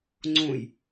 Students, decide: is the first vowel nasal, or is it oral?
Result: nasal